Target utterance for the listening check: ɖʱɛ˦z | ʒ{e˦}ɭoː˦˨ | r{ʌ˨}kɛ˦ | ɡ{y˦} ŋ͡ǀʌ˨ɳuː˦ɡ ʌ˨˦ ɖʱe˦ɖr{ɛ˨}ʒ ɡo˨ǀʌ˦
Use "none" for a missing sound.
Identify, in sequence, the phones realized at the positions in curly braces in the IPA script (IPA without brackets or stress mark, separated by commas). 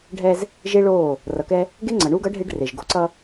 e˦, ʌ˨, e˦, e˨